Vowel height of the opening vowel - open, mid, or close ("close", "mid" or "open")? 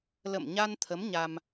mid